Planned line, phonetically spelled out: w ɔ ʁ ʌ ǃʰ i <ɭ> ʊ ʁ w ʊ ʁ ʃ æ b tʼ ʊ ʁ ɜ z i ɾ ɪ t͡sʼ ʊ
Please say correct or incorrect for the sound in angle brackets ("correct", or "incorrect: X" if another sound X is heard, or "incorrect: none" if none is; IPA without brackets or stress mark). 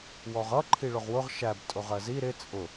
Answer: correct